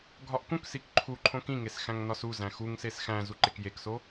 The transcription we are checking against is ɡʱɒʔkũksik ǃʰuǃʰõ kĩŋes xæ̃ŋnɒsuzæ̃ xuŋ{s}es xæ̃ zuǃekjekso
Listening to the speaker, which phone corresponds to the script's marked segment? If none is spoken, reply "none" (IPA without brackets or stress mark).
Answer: s